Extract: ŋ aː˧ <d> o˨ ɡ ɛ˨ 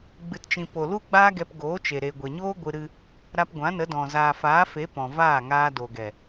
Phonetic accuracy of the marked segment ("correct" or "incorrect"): correct